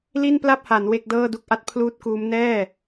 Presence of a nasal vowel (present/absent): absent